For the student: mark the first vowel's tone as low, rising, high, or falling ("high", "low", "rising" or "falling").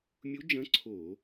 rising